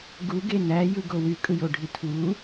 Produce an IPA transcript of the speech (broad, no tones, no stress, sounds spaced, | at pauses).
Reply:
ɡ u ɡ e n æ j ɯ ɡ o w y kʼ ɯ j o ɖʱ i tʰ w u